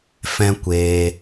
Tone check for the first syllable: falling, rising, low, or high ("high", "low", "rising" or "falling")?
high